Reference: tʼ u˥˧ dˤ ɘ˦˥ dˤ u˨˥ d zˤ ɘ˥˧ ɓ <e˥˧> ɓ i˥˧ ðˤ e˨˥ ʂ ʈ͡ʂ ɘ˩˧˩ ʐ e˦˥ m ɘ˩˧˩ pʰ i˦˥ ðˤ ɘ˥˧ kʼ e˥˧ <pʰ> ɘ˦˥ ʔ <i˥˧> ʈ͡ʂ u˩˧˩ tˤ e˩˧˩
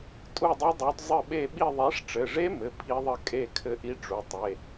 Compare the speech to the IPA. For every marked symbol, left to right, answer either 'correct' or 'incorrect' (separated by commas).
correct, incorrect, incorrect